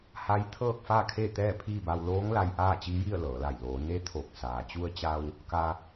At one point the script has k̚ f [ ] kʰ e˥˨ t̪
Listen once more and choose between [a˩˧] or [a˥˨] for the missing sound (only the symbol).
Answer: a˥˨